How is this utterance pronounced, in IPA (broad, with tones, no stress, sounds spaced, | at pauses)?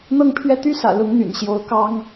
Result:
n̪ ɤ˥˧ ŋ pʰ ɥ ɛ˥˩ t̪ y˥ s ä̰˨˩ l ʊ˧˥ ŋ n̪ y̰˨˩ n ɕ j o˧˥ ʊ̯ k ɑ˥ ŋ